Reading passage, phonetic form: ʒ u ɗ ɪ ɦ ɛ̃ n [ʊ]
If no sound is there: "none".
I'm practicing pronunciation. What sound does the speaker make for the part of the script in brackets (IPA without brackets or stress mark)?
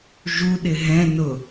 ʊ